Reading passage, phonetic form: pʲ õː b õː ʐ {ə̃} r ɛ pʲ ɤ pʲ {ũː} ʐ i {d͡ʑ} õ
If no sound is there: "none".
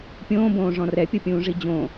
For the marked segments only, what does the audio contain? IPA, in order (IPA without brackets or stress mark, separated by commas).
ɔ̃, ũː, d͡ʑ